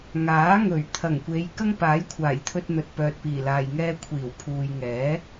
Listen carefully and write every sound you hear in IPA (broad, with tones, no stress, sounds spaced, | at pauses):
ŋ aː˨˥ ŋ ɵ˨˩ ɥ t̪ʰ ɐ˨˩ ŋ kʷ e˨˧ j k ɐ˥ ŋ p aː˨˥ j kʷʰ aː˨˩ j t̪ʰ ɵ˧ t̚ n̪ ɵ˨ t̚ p œː˨ t̚ p iː˨˩ l aː˨ j ŋ ɛː˧ kʷʰ iː˨˩ w pʰ uː˨ j ŋ ɛː˨˥